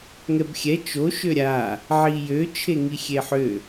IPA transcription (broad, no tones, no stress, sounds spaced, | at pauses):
ŋ ɛ b xʲ ɛ t͡ʃ o ʃ ø ɾʲ a | ʕ i j ø t͡ʃʰ e ŋ i xʲ e ħ ø